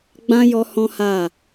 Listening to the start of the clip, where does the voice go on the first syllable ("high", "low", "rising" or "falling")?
high